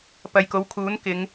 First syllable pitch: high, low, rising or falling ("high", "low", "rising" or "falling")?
low